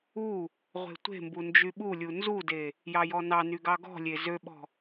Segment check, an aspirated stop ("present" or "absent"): absent